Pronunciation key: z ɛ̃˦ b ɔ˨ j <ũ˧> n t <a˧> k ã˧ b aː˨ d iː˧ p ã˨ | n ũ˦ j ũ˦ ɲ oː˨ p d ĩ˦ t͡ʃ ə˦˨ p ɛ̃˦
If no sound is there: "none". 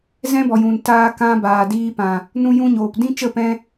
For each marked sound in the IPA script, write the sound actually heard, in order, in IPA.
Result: ũ˨, aː˧

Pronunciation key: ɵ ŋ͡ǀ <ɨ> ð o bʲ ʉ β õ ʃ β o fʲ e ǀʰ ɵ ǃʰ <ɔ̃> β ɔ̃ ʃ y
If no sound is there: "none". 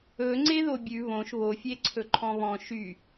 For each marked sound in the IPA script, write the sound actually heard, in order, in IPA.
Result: e, ɔ̃

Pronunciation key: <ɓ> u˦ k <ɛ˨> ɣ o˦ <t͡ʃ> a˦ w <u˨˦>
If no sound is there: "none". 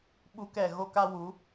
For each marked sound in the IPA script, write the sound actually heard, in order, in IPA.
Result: ɓ, ɛ˦˨, k, u˨˦

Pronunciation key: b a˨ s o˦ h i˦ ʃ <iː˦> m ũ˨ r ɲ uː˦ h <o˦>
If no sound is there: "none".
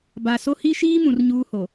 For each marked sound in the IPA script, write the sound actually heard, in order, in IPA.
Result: iː˦, o˨

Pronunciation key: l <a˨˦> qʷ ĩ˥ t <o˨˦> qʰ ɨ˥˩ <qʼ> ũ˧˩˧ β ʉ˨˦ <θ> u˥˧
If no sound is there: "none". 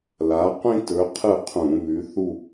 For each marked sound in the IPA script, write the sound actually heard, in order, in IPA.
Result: a˨˦, ɵ˨˦, qʰ, θ

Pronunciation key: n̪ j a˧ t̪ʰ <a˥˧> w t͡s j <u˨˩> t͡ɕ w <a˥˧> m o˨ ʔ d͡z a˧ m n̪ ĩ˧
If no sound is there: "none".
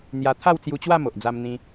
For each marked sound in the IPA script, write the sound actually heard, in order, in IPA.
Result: a˥˧, u˧, a˥˧

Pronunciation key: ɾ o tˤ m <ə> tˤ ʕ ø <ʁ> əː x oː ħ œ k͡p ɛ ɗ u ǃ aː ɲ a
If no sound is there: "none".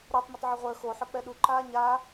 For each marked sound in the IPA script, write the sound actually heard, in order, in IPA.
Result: ə, ʁʷ

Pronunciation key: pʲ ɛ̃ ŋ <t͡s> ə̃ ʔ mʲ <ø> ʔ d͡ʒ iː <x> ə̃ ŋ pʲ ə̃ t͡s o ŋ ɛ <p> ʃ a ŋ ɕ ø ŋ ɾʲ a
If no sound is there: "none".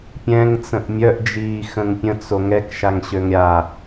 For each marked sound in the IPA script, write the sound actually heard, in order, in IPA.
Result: t͡s, œ, x, k

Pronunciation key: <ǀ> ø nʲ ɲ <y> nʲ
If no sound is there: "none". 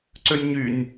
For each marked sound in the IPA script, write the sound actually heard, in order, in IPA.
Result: ǀ, y

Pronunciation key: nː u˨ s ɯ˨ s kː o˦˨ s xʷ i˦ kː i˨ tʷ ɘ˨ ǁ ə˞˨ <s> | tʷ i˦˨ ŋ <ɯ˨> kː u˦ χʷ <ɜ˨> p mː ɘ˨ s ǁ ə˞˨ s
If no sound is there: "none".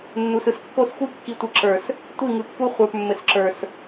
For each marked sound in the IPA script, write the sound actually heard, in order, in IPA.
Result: s, ɯ˨, ə˞˨

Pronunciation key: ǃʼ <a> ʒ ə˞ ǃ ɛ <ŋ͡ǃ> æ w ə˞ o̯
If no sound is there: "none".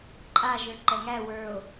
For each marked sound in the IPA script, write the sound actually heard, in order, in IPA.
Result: a, ŋ

